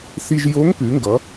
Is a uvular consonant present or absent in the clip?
absent